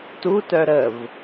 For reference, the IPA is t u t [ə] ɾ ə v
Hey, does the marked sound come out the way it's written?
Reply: no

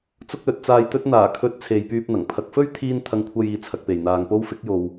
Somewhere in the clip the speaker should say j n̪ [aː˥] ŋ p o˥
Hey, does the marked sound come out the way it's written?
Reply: no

